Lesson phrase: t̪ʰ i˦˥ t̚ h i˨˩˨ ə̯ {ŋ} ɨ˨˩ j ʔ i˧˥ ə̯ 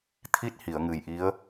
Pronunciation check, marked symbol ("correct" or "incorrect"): correct